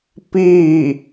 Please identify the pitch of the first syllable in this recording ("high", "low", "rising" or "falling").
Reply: falling